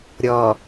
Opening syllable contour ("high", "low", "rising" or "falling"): low